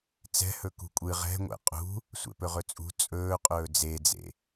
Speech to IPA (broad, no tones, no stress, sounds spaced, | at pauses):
t͡s ɛ̤ h ɵ k ṳ kʷʼ ɨ ʁ ɛ̤ ŋʷ ɛ̰ qʼ ṳ | sʷ ɛ̰ p ɵ ʁ ɵ t͡sʼ ṳ t͡sʼ ɵː qʼ ɵː d͡z e d͡z ḛ